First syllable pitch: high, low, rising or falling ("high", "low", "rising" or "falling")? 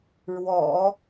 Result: low